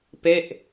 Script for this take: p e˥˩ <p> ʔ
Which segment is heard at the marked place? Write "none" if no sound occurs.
none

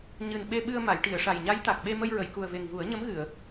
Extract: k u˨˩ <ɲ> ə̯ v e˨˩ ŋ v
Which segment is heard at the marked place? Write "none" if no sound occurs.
none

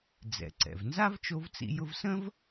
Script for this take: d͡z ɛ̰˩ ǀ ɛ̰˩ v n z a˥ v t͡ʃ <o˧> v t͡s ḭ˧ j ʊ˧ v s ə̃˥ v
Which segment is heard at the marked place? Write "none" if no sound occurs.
o˧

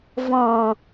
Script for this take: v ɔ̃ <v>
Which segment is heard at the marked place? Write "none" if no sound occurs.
none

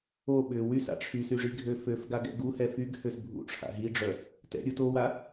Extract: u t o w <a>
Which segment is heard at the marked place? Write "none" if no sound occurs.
a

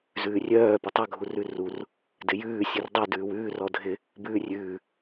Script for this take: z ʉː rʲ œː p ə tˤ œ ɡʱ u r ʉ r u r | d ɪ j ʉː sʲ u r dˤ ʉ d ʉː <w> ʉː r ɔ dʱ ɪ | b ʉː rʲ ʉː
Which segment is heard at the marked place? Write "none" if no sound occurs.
w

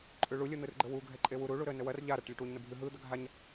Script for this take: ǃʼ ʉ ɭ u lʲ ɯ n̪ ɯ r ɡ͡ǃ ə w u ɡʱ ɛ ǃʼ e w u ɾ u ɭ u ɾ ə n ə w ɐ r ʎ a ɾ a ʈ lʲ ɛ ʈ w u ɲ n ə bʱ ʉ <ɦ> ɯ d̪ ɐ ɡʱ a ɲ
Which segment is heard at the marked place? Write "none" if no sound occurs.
ɦ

